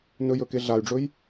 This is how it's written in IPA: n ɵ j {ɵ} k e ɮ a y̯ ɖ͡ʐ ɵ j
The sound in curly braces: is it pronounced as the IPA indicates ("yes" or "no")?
yes